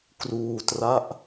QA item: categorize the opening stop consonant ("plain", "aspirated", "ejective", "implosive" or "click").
plain